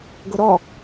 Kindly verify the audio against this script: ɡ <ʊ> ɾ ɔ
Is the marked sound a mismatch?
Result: no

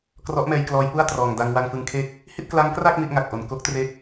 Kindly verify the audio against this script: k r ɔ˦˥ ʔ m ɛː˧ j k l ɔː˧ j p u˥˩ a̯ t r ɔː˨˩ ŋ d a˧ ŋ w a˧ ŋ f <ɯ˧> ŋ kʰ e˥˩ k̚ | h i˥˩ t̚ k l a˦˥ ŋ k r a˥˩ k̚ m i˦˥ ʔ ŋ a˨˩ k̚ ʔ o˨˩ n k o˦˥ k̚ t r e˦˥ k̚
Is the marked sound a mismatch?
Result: no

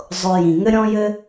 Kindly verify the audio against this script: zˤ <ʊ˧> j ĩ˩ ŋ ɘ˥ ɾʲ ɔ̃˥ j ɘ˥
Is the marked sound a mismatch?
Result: no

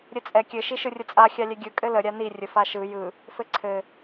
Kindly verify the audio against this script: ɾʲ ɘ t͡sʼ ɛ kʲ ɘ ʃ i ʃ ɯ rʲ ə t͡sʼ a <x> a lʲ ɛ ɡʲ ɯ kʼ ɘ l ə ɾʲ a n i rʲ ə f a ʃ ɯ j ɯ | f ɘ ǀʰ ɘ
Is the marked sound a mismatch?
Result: yes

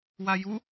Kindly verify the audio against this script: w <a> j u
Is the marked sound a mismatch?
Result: no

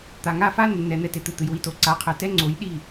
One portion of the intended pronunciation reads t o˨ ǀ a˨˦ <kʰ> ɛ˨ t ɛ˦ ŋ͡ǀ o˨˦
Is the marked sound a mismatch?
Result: yes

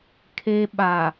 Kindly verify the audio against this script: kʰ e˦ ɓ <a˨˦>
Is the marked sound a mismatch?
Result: yes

